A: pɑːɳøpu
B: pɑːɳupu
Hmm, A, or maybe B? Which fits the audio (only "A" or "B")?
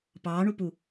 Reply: B